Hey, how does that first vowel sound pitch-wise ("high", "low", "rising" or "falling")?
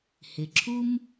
low